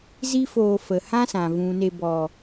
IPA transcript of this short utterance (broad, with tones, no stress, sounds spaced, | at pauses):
z i˦ f oː˧ f ə˨ h ã˦ s ã˨ v ũ˨ n e˧ b ɔ˨